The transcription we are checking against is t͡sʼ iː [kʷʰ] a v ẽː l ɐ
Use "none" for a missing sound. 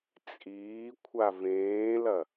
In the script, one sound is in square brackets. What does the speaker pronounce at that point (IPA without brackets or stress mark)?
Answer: kʷʰ